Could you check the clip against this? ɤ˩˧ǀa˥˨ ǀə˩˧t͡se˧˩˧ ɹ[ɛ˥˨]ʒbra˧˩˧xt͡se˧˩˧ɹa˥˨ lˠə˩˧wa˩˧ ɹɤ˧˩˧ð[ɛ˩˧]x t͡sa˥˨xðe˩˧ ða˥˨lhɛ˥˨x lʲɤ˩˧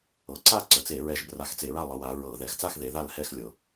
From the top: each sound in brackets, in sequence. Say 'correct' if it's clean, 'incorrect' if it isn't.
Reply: incorrect: ɛ˧˩˧, correct

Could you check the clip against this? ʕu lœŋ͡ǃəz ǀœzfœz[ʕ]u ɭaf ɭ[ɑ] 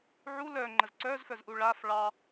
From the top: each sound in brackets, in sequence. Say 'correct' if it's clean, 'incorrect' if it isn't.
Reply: incorrect: ʔ, correct

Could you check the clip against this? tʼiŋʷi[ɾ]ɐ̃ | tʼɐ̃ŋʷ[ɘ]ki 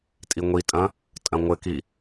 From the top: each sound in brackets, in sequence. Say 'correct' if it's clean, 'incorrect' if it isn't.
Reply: incorrect: tʼ, correct

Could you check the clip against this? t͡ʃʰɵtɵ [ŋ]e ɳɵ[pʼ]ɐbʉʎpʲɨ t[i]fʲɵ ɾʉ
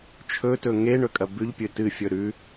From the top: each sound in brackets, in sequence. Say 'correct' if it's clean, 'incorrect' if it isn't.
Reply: correct, incorrect: kʼ, incorrect: ɨ

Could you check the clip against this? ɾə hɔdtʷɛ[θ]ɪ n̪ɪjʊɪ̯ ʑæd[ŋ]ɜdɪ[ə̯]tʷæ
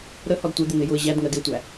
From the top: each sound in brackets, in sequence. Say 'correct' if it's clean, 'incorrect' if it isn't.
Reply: incorrect: d̪, correct, incorrect: ʊ̯

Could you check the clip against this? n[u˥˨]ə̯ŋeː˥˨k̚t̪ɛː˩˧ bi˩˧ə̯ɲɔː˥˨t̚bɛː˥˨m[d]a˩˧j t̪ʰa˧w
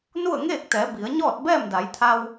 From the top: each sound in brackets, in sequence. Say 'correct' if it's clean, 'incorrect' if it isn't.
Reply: correct, correct

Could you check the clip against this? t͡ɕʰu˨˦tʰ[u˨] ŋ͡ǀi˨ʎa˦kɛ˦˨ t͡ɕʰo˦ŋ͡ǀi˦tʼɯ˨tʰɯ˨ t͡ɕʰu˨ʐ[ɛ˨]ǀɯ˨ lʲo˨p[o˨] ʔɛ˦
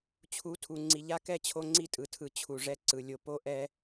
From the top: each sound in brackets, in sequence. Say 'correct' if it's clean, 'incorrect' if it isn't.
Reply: correct, incorrect: ɛ˦, incorrect: o˦

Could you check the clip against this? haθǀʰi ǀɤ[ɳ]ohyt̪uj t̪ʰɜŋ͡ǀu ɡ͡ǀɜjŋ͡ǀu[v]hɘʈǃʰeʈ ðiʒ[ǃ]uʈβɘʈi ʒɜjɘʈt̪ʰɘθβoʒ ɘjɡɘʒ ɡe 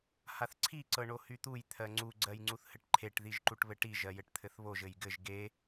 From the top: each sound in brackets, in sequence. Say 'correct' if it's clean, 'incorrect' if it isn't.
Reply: correct, incorrect: θ, correct

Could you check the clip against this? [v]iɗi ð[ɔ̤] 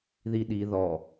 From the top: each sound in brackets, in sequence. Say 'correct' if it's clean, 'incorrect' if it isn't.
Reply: incorrect: ð, incorrect: ɔ

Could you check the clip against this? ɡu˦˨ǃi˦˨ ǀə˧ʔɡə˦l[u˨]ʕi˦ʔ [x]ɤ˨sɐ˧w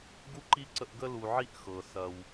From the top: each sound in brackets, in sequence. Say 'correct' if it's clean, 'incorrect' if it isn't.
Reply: correct, correct

